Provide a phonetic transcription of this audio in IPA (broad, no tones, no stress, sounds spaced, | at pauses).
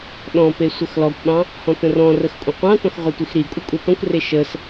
ɗ ɔ̃ p e sʷ ə x l ɔ kʷ ɓ ɑ̃ | h ɔ̃ t ə̃ r ɔ̃ r ə x kʷʼ ə̃ qʷ ɑ̃ t ɔ̃ x ʁʷ e tʷ i x ɾ i kʷʼ ə kʷʼ e t ɔ̃ kʷ r e ʃ ə s